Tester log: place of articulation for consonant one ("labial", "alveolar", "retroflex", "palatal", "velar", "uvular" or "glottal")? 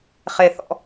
uvular